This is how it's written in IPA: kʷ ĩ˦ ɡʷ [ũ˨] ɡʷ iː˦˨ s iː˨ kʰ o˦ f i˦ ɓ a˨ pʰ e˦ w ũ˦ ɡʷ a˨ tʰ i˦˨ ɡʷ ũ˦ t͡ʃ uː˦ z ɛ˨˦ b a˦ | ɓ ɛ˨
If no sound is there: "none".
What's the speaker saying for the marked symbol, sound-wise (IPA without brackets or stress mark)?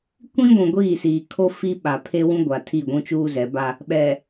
ũ˨